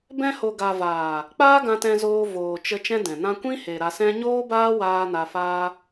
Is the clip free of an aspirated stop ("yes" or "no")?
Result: yes